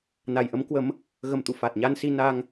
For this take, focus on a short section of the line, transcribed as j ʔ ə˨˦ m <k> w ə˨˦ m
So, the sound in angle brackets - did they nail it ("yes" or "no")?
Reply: yes